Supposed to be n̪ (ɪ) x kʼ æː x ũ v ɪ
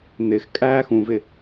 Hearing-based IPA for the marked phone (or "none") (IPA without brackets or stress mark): ɪ